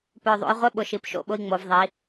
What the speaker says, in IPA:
pœ˨˩ ðˤo̰˧jʁʷɪ˧˥˧ ɓʊ˨˩ʃi˩˧pʃo̰˥˨ɓʊ˧i̯ ŋ͡mo˩˧vðˤi˩˧

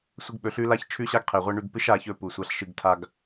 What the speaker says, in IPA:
sʷɨ˧ɡ ɓɵ˨ɬʉ˧ la˦çt͡ʃʰʉ˦ɕa˦ɡqʰe˨ ʁʷe˦ ɳʉ˧ɡpɨ˦ʃ a˧çɵ˦˨ pu˨sʷa˧ɬʃɨ˧ɡ tʰa˦ɡ

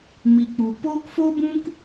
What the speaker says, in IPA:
mi˨ k͡pu˨ poː˦kfo˦bũ˦k

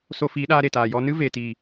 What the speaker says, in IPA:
so˧fiː˨˦ɗaː˧ ɾe˨taː˨jɔ˦ nɨ˦ve˨tiː˨

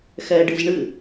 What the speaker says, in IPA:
xɛɖɨz ɳɨ

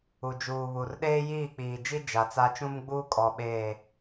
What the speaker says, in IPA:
u˨d͡ʒuː˨βu˨r ɗeː˦jiː˦˨k͡piː˨d͡ʒi˦ d͡ʒa˨t͡sa˦ t͡ʃũ˦mɡ͡buː˦kʼɔ˨ ɓeː˦˨

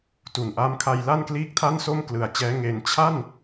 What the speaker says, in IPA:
tu˨˩nʔa˦˥mkʰa˧j la˥˩nkliː˥˩k̚tʰa˥˩nso˥˩m klɯ˨˩a̯t͡ɕɛː˦˥ ŋe˧n t͡ɕʰa˥˩n

